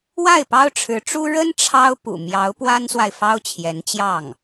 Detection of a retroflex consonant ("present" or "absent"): present